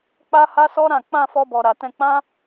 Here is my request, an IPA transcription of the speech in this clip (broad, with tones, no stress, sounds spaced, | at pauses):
k͡p a˦ h a˦ s ɔ˦ ɾ ã˦˨ k͡p ã˧ f ɔ˦ b ɔ˧ ɾ a˧ t ɛ̃˧ k͡p ã˦